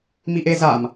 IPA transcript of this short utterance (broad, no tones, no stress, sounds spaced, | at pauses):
m i ʔ e z a m